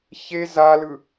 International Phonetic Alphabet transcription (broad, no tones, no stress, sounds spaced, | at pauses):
ç e z a l ɯ